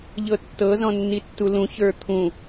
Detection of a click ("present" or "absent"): absent